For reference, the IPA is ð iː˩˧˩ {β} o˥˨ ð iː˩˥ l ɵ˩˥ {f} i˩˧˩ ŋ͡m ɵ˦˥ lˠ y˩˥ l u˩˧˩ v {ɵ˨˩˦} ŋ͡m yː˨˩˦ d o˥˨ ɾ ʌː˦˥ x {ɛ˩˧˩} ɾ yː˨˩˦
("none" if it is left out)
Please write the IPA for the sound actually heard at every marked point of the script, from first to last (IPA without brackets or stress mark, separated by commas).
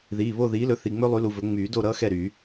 β, θ, ɵ˨˩˦, ɛ˥˨